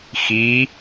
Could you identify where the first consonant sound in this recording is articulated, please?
velar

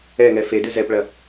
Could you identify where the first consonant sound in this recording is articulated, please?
velar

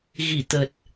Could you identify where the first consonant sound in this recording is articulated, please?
velar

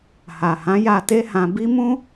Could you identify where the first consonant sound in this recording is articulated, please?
glottal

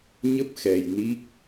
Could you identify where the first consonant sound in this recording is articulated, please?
palatal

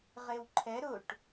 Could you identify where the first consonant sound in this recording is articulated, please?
uvular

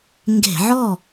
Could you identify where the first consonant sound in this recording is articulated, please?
velar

